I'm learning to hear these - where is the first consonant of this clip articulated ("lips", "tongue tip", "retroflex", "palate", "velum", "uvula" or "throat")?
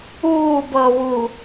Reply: lips